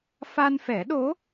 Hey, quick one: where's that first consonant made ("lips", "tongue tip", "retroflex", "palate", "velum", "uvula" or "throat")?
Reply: lips